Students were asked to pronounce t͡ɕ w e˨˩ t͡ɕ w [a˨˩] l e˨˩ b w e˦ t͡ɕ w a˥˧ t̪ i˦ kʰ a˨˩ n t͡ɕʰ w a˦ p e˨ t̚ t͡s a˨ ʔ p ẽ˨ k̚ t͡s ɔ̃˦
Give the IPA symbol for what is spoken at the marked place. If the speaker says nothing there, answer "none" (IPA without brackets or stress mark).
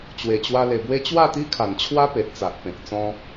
a˧